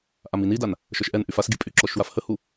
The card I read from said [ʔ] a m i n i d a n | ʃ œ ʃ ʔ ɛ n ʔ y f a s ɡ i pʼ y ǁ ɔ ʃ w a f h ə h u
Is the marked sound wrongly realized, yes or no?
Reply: no